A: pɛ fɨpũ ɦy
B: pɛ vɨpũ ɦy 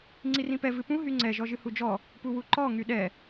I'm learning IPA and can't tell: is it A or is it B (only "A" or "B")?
B